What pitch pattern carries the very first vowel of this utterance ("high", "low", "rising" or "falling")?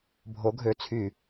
rising